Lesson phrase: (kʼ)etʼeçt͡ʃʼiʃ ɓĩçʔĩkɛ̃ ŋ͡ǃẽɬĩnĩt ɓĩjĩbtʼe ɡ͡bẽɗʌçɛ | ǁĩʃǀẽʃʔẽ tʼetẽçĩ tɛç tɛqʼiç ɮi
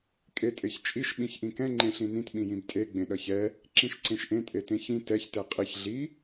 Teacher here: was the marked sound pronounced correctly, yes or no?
yes